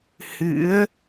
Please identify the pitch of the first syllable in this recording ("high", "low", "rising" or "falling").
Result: rising